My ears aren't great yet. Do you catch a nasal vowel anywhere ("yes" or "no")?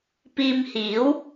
no